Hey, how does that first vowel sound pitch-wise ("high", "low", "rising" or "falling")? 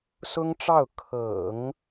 high